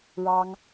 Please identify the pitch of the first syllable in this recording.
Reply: high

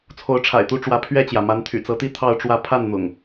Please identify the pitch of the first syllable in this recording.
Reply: rising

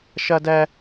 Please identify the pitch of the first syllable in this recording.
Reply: high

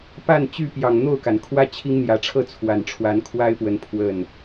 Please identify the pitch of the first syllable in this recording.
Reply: falling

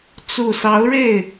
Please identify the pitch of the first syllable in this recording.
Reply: low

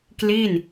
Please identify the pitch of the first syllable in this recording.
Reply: falling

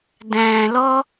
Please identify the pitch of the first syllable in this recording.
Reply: low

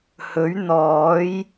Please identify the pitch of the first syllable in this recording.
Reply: rising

